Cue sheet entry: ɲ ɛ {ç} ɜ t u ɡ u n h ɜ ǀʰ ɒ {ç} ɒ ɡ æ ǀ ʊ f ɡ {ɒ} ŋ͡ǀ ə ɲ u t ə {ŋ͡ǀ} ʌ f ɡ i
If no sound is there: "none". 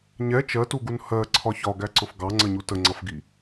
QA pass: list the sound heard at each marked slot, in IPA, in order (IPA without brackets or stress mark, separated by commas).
t͡ʃ, ç, ɑ, ŋ͡ǀ